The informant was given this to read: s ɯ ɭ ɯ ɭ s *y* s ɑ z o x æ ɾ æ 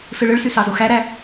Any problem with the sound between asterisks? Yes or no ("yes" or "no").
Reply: no